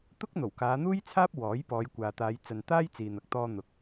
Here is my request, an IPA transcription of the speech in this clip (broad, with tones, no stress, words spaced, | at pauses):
t̪ʊ˥k̚ n̪o˨˩wkaː˨˧n̪uː˥jt͡sʰaː˥p̚ wɔː˨˥jpɔː˨˧jkʷaː˨t̪aː˨˧j t͡sɐ˨n t̪aː˥jt͡siː˨n̪ɐ˨k̚t̪ɔː˧ n̪ʊ˨k̚